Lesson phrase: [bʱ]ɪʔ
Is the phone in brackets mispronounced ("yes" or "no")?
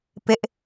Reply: yes